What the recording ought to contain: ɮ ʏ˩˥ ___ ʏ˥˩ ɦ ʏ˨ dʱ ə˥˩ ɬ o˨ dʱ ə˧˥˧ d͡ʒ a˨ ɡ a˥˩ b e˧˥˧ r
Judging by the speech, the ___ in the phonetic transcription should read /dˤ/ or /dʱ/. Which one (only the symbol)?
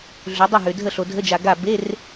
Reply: dˤ